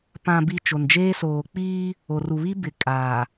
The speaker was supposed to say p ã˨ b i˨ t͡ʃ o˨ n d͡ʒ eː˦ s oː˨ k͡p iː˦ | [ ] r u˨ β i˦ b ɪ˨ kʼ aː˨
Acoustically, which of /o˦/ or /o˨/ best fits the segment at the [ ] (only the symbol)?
o˨